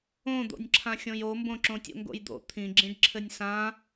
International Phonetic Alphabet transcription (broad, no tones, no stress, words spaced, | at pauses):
õd̪o̰nʲǁʰã xʲõjombõ ǁõtʲo̰ŋɡo̰jd̪o̰ t̪ʰĩɡ͡ǁĩɖ ǁʰɘnʲsã